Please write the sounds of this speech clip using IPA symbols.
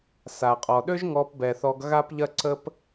sa˨qʼɔ˨ɗø˦ʒ ŋɔ˧pbɛ˨θɔ˧ɡ ɣa˦pʎɐ˦ǀə˦p

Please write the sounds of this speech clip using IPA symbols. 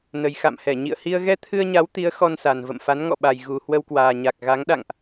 nə˨˩jxa̰˧˨mhɛ˧˩ ɲḭ˧˨ə̯hi˧ə̯ ɣɛ˧ t̪ʰɨ˧ə̯ɲa˨˦wt̪i˨˦ə̯ xɔ˧nsa˨˩nvə̰˧˨m fa˨˦nŋɔ̰˧˨ɓa˨˩j ɣu˨˩ hwə˧wkwaː˨˩ ɲa˨˩k̚ɣa˨˦ŋ ɗa̰˧˨ŋʔ

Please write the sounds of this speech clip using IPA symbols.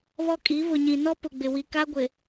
βɔ˦kʼi˨˦ βʊ˨ɲĩ˨nɔ˦ pʊ˨ɡ͡bɪ˨ wi˨ka˦ ɡʷɪ˨

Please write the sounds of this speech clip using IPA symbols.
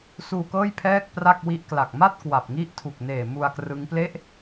suː˧kɤː˥˩j pʰɛː˥˩k̚pra˥˩k̚wi˦˥ʔ kla˨˩k̚ma˥˩t̚ kwa˨˩p̚ŋi˦˥ʔtʰu˨˩k̚neː˨˩ mu˧a̯krɯ˦˥ŋ ple˦˥ʔ

